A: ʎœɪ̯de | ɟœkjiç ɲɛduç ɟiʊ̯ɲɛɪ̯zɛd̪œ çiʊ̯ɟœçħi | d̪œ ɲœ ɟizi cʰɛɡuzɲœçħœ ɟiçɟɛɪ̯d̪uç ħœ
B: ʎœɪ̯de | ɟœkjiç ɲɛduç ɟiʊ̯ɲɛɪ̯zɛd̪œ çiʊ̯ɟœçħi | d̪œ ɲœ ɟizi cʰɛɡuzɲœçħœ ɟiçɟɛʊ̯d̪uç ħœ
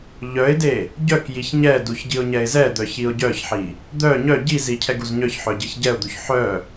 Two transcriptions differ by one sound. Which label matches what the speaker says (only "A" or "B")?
B